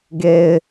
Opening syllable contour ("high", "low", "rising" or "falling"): low